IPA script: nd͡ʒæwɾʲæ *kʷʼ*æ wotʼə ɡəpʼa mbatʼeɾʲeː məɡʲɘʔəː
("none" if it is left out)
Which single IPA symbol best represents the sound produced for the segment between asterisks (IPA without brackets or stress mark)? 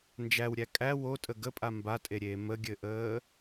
kʼ